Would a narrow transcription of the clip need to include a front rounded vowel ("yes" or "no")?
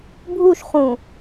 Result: no